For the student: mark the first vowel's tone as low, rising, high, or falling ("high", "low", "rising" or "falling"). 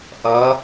rising